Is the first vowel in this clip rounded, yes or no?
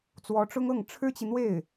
yes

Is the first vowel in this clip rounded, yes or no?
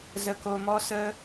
no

